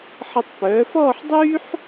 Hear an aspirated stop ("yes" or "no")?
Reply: no